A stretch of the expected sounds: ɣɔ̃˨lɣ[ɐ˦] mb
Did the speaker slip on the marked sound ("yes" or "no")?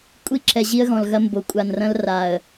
no